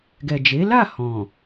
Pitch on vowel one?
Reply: low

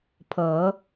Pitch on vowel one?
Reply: low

